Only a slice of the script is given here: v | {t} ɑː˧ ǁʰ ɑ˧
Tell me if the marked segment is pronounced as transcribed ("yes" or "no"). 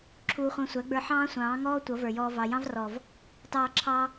yes